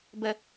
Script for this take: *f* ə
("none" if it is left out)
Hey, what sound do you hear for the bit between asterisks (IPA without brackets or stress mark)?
b